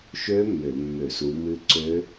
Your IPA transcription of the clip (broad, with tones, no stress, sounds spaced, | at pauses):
ʃ ø˦˥ mː ø˧˩˧ mː ø˧˩˧ s u˨˦ m ɨ˦˥ ǀ ø˦˥